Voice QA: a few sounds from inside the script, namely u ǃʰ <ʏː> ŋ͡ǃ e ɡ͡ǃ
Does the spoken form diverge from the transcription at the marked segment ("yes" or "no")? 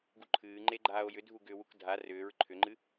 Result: yes